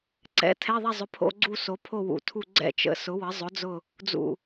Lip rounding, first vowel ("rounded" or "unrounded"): unrounded